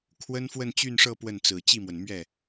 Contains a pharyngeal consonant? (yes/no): no